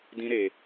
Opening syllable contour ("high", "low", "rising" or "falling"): high